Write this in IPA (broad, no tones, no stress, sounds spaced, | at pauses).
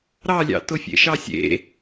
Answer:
ɾ ɑ lʲ ɑ̰ t ʊ fʲ ḛ ʃ ɑ sʲ ḛ